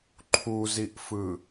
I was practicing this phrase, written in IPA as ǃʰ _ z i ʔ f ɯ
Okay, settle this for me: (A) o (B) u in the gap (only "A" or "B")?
B